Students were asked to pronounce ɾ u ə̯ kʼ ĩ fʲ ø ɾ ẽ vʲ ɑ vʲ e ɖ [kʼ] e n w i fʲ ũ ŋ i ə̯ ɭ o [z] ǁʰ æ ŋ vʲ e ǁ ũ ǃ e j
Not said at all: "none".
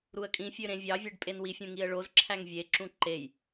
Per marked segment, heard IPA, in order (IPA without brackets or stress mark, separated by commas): pʼ, z